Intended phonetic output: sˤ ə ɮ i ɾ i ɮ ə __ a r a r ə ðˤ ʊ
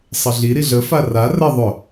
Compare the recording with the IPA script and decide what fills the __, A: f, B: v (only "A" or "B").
A